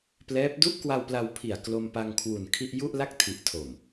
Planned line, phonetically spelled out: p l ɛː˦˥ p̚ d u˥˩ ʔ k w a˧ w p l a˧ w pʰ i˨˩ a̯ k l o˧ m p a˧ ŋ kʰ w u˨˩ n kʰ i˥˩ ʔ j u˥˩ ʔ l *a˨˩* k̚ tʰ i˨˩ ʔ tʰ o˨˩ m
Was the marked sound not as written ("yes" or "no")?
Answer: yes